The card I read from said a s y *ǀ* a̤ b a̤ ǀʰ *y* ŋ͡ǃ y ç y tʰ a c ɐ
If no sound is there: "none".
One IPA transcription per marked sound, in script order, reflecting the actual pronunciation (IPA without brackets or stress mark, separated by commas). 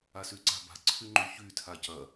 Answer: ǀ, y